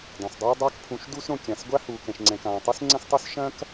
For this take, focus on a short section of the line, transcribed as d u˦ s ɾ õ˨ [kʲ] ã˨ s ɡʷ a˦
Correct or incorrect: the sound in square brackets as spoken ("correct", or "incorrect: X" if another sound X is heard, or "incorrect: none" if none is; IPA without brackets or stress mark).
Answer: correct